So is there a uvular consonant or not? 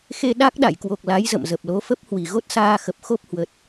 no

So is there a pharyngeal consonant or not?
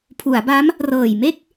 no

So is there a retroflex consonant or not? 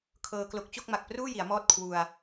no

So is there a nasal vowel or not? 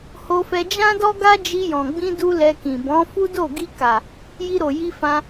yes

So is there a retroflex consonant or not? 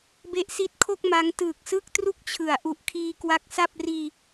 no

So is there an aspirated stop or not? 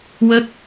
no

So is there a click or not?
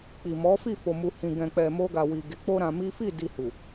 no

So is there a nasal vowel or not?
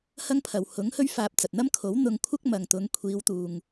no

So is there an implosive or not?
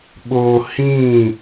yes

